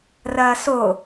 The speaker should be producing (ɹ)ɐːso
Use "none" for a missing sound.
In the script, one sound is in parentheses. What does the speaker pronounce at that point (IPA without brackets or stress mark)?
r